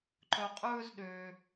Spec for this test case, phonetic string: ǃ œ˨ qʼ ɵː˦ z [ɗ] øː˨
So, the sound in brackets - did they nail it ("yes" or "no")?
yes